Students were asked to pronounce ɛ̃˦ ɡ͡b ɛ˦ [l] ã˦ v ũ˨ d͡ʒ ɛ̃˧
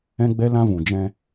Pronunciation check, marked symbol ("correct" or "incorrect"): correct